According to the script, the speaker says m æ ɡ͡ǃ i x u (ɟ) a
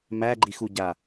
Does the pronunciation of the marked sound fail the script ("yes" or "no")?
no